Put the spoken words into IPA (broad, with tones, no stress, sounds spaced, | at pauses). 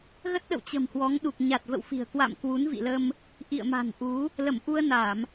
ɣ ə˦˥ t̚ ɗ ə̰˧˨ w t͡ɕ ə̤˨˩ m h w ɔ˨˦ ŋ ɗ u˨˩ k̚ ɲ a˨˩ t̚ v ə̰˧˨ w f i̤˨˩ ə̯ k w a̰˧˨ m k w u˨˦ n v ḭ˧˨ l ə˧ m | ʔ ḭ˧˨ ə̯ m a̤˨˩ n ʔ u˨˦ | l ə˧˩ m ʔ u˧ ə̯ n a˧˩˨ m